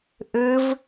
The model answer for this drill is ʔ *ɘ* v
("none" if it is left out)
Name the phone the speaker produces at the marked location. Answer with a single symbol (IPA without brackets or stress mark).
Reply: ɘ